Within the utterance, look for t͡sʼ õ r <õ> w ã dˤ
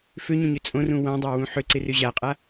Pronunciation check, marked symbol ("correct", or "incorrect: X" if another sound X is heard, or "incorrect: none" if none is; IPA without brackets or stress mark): incorrect: ũ